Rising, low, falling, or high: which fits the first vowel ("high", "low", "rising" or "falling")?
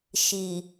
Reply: low